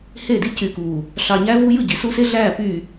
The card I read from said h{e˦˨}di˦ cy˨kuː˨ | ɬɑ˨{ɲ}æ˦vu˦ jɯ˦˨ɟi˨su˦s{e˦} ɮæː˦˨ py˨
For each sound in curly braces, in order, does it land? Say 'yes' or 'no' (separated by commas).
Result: yes, yes, yes